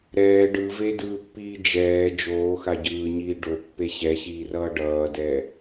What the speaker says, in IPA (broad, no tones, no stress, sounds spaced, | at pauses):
ɾ ɛː ɖ ɯ v e d ɯː pː iː d͡ʒ ɛː d͡ʒ oː x a ɟ ɯː ɲ iː ɖ o pː e ɕ ɛ ɕ iː r ʌː ɖ ʌː d ɛ